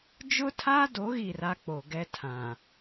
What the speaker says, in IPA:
d͡ʒ ʊ˦ tʰ a˦ d o˨˦ ɣ i˦˨ r a˦ k͡p o˨ ɡ ɛ˦ tʰ ã˨

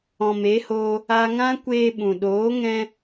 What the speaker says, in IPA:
ɔ̃˨ m e˨˦ h oː˧ | a˧ ŋ ã˦ kʷ eː˧ ɓ ũ˨ ɗ oː˨˦ ŋ ɛ̃˧

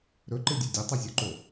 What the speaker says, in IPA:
ɾ ɵ ǃ ɨ dʲ u dʲ ɵ tˤ ʉ zʲ o ǃ o

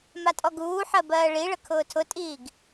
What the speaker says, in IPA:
m a tʼ ɔ ɡ uː ħ ɜ b ɜː ɭ i ɭ ə kʰ ʊː tʰ ʊ tʼ iː ɡ

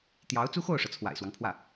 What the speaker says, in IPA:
t̪ j ɑ˧˥ ʊ̯ t͡s u˥ x o˥˩ ʊ̯ ʂ ɤ˩ t͡sʰ w a̰˨˩ ɪ̯ s w ɑ˦ ŋ pʰ w ä˥˩

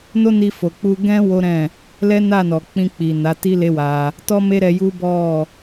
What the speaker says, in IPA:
n o˦ n i˧ f o˨ k͡p u˧ ɡ ɛ̃˦ w o˦ ɾ ɛ̃˦˨ | l ɛ˦ n a˦˨ n ɔ˨ k͡p ĩ˧ k͡p i˨ n a˨˦ t i˦ l e˦ w a˧ | t ɔ˦ m e˦ ɾ ɛ˧ j u˦ b ɔ˦˨

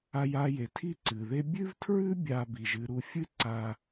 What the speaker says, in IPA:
a˧ j a˧ j e˩ tʰ i˥ ǀ ɨ˩ ð e˥ bʲ ʉ˥ v tʰ ɹ ʉ˥ bʲ a˧ b i˩ ʒ ɨ˧ ɾ u˧ fʲ ɨ˥ ǀ a˧

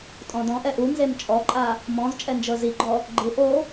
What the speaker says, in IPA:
tʼ ɔ̃ d ɔ̃ ʔ ɛ ʔ u n z e m t͡ʃʼ ɔ ǃʼ a | m ɔ̃ z t͡ʃʼ ɛ n d͡ʒ ɤ z i ɡ͡ǃ ɔ | ɡ͡ǃ ɯ ʔ o

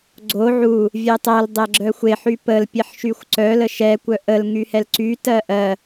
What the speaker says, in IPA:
ɡ͡ǀ o ʕ u | vʲ ɛ tˤ ɜ l dˤ ɛ ɡ͡ǁ œ xʷ e ħ y p ə l pʲ e ħ ʃ y xʷ ǀ œ l ə ʃ ɛ kʷ œ ʔ ə l ŋ y h ɛ l ǀ y t ɜ ʔ ɜ

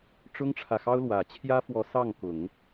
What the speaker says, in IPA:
ʈ͡ʂ ʊ˥ ŋ ʈ͡ʂʰ ä˨ x ɑ˥ ʊ̯ l w ä˨˩ t͡ɕʰ j ä˥ f w ɔ˧˥ s ɑ˥˩ ŋ k ʊ˨˩˦ ŋ

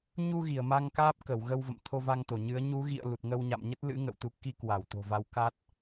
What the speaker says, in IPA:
ɲ u˧ ɣ i˧˩ ə̯ m a˧ ŋ k aː˦˥ p̚ k ə˧˩ w ɣ ə˧ w v ə̰˧˨ m t̪ʰ o˧ v a˧ ŋ t̪ o˧˩ ɲ ɨ˨˦ ə̯ ɲ u˨˦ ɣ ḭ˧˨ ə̯ l u˨˩ t̚ ŋ ə˧ w ɲ a̰˧˨ m ɲ ə˦˥ t̚ l ɨ̰˧˥ ŋ ə̰˧˨ w t̪ u˨˦ k i˧ k w a˧˩ w t̪ o̤˨˩ v a˨˦ w k a˦˥ t̚

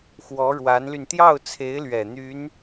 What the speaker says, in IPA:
x w ɔ˧˥ ɻ w a˧˥ n l y˧ n t̪ j ɑ˥˩ ʊ̯ t͡sʰ e˧˥ ɪ̯ l ɥ ɛ˨˩ n̪ y˧˥ n

